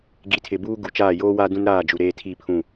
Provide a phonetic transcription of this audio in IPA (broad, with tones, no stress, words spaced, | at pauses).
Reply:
ɡi˨tʰɪ˨ buː˦ɡu˨t͡ʃaː˦˨ joː˦waː˦dũ˦n ɾaː˦˨d͡ʒu˨ ɾeː˦tʰi˦˨pʰũ˦˨